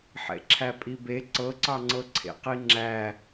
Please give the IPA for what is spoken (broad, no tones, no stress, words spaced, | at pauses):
ħḛǁʰæpʼibe ǀɤǀɑŋ͡ǀɤǀʰḛ qiŋ͡ǁæ